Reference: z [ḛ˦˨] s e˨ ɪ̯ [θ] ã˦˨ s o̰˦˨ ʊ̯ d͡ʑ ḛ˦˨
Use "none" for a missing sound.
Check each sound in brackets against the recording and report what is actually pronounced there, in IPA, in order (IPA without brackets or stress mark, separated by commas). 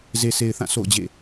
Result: e˨, θ